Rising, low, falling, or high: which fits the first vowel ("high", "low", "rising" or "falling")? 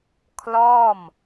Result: falling